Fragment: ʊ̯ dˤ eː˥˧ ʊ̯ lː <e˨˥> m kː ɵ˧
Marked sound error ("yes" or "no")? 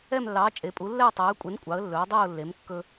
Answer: no